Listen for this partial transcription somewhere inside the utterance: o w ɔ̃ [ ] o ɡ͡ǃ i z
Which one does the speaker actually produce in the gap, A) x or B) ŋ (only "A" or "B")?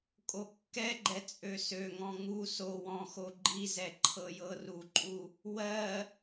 A